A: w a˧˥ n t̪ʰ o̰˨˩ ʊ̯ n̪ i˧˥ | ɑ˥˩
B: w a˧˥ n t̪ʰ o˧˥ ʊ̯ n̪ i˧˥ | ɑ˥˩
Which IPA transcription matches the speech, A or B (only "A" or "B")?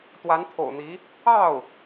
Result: A